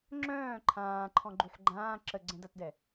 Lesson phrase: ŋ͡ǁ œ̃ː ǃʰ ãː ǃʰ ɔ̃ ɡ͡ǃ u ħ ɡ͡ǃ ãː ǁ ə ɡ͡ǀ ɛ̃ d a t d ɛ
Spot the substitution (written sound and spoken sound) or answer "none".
none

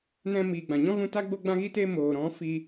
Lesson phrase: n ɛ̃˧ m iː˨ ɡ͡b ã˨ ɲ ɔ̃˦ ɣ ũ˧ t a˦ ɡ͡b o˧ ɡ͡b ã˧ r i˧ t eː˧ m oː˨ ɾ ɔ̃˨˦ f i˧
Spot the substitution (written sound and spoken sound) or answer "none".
r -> ɣ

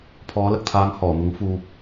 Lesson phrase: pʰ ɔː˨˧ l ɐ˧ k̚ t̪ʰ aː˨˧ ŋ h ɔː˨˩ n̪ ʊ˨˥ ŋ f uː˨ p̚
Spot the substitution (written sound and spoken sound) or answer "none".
none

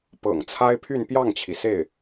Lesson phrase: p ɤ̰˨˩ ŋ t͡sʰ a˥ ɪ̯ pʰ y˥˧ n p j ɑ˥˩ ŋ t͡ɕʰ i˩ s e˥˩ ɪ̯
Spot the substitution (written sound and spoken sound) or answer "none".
none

